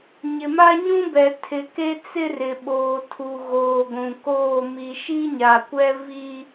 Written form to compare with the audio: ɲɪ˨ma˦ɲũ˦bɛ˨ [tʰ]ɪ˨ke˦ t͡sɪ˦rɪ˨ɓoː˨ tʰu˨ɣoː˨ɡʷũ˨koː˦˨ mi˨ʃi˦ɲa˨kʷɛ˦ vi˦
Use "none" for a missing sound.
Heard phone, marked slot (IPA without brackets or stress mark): tʰ